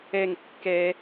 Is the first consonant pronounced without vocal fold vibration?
no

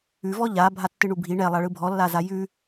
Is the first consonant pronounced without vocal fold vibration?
no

